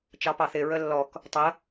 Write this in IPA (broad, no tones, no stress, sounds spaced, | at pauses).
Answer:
t͡ʃ ɑ p ɑ θ ɪ ɹ ə lː ɔ k | tˤ ə